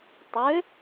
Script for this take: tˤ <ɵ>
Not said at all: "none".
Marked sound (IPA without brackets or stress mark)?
ø